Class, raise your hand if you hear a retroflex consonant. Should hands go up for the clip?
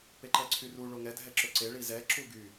yes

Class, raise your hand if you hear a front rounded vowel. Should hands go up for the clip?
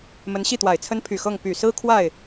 yes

